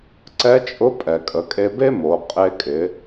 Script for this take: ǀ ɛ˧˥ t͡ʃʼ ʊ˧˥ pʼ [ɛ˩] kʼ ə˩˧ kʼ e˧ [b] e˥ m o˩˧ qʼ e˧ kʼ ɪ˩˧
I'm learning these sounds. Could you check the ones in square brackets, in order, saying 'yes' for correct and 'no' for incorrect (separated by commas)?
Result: yes, yes